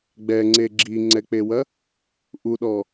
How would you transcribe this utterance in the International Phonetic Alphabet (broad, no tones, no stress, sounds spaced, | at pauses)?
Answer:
ɡ͡b ɛ ŋ͡ǀ e ɡ͡ǁ i ŋ͡ǀ ɛ k͡p e w ɐ | ʔ u ɗ ɔ